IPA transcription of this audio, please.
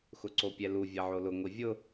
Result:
x ʊ ǀ o pʲ ɛ l u vʲ ɛ ʕ o l ʊ ŋʷ i vʲ ʊ

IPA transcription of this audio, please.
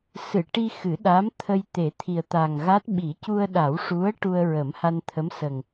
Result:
s ɨ˨˩˨ ʈ i˧ x ɨ˨˩˦ ɗ a˧˥ m t̪ʰ ə˧ j t̪ e˨˩˦ t̪ʰ i˨˩ ə̯ t̪ a˨˩ ŋ ɣ a˦˥ t̚ ɓ i˨˩˦ c u˧ ə̯ ɗ a˨˩˦ w ʂ u˧˥ ə̯ ʈ u˧ ə̯ ɹ ə˨˩˦ m h a˧ n t̪ʰ ə˧˥ m s ə˨˩ ŋ

